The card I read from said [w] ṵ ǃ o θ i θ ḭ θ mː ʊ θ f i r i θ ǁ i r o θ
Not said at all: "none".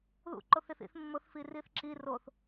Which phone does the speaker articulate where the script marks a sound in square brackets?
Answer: ð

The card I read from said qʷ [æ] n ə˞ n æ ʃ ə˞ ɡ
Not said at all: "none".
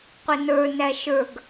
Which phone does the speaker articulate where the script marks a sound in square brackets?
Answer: ɛ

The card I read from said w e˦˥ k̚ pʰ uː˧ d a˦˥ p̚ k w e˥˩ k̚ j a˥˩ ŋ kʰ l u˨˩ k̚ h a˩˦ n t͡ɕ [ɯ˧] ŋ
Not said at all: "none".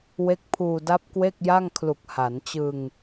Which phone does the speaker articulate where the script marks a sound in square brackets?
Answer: ɯ˧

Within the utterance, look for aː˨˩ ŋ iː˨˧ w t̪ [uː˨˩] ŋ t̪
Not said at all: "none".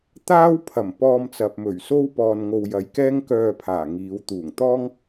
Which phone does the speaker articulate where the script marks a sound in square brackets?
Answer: uː˨˩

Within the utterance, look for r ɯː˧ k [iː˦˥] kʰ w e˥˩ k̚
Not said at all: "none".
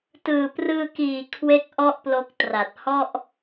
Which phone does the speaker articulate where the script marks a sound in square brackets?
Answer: iː˨˩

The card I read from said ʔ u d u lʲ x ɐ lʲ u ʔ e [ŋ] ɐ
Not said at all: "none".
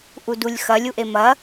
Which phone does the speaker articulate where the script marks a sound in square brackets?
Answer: m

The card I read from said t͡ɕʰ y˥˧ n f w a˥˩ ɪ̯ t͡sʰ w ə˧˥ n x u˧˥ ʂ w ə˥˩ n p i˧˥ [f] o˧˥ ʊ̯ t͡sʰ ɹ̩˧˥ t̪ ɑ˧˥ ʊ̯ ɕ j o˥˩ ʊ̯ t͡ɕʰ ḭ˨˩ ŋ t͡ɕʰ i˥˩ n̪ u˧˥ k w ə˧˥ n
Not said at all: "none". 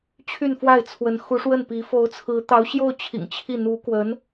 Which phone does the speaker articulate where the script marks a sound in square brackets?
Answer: f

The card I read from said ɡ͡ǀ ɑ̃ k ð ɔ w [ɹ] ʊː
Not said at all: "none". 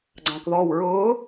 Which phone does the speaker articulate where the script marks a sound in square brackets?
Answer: ɹ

